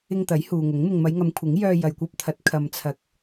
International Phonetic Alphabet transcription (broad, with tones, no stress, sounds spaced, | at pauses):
ɪ˧ ŋ t̪ ɐ˨˥ j h uː˨ ŋ ʊ˨˥ ŋ m ɪ˧ ŋ m ɐ˨˧ j ŋ ɐ˨˧ m kʷʰ ɪ˨˥ ŋ j œː˧ j ɐ˨ j kʷ ɐ˧ p̚ t̪ʰ ɐ˨˥ t̚ kʰ ɐ˨ m t͡sʰ ɐ˨˥ k̚